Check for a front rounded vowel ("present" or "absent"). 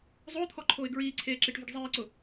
absent